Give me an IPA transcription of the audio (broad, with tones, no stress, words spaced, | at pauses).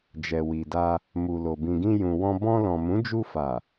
d͡ʒɛ˨wi˨da˧ | mu˨lo˨ bĩ˨ɡĩ˧jũ˨wɔ̃˧ bɔ̃˧lɔ̃˨mũ˨˦ d͡ʒu˧ fa˨